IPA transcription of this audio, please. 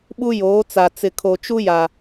ɓ u˦ j oː˨˦ t͡s a˨ t͡s ɪ˨ kʰ o˨ t͡ʃ u˦ j a˨

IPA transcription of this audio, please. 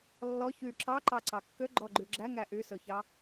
lː ɔ ç y ǁ ɑ ǃ ɑ ǀ ɑ kː ø ɡ͡ǃ ɔ ɡ͡ǃ y ɡ͡ǁ æ ŋ æ ʔ y s ɵ ç ɑ

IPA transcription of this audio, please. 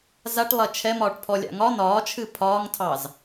z a ʈ lˠ ɐ t͡ʃʰ ɛ m ɒː ʈ pʰ ɔ lʲ a̰ ŋ ɒ n ɒː t͡ʃʰ ɨ pʰ ɒː ŋ tʰ ɑ z

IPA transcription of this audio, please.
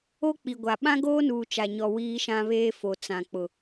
o˦ k͡p i˨ ɡʷ a˨ ɓ ã˦ ɡ oː˦ n uː˨ t͡ʃ a˨ ɲ ɔ˨ w iː˦ ʃ ã˦ β eː˦ f o˨ t͡s ã˨ k͡p ʊ˨

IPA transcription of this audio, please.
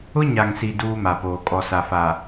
ʊ˦ ɲ a˨ ŋ s i˨ d uː˦ m a˨ p oː˨ kʼ ɔ˨ s a˨ f a˨

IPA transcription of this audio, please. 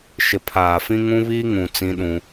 ʃ ɪ˨ pʰ aː˨ f ĩ˦ ŋ ũ˦ β iː˦ ŋ ũ˨ t͡s ĩ˦ ɗ ũ˦

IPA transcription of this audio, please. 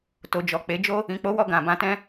t o˨ d͡ʒ ɔ˨ k͡p e˨˦ d͡ʒ o˦ | ĩ˨ k͡p o˨˦ w ɔ˧ ɡ ã˨ b ã˧ t ɛ̃˦

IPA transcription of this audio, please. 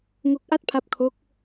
ŋ o˦˥ k̚ ʔ a˥˩ t̚ pʰ a˦˥ p̚ kʰ o˦˥ k̚

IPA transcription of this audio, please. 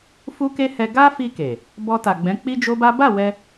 f u˦ k e˦ h ɛ˧ ɡ a˦ f i˧ k e˨ | b ɔ˧ t a˨ ɡ͡b ɛ̃˨˦ k͡p i˦ d͡ʒ o˦ b a˦ b a˦˨ w ɛ˧

